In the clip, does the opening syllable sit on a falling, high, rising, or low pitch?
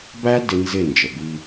high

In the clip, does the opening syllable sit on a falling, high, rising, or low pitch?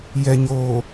low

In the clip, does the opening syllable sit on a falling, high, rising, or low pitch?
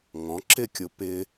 rising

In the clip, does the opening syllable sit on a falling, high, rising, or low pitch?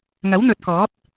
rising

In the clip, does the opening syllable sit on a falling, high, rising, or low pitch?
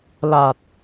low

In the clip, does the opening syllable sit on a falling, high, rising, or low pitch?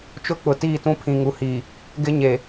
falling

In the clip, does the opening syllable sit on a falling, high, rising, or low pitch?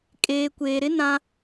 low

